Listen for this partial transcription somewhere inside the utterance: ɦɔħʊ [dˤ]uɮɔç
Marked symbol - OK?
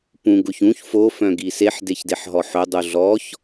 yes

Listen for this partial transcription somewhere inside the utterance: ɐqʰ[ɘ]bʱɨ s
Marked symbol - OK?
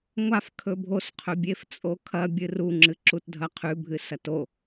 no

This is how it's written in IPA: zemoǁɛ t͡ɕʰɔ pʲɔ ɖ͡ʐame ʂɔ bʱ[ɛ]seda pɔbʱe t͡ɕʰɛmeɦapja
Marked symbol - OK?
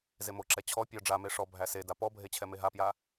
no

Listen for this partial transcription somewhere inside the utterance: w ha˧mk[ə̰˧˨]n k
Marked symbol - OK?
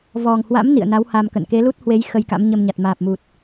yes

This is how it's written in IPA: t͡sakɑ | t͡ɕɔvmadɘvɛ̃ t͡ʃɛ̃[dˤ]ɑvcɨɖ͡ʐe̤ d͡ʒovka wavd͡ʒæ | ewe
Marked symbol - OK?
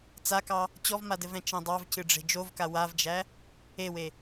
yes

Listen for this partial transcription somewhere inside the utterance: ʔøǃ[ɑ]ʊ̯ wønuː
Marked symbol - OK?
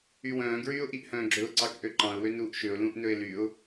no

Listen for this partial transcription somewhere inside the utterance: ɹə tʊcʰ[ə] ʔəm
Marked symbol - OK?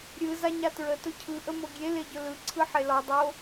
no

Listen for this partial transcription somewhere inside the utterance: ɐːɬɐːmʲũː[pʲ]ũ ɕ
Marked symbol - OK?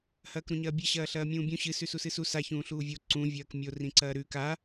no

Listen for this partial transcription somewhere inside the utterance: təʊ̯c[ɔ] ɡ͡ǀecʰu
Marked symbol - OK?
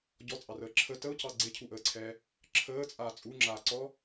no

